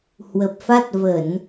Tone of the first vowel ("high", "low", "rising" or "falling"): low